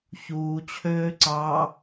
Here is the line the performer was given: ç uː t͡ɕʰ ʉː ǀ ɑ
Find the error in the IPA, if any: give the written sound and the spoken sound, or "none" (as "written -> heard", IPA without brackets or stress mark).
ʉː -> øː